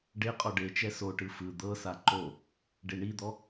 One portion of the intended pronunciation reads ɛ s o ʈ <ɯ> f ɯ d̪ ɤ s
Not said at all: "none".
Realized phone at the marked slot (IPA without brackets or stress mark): ɯ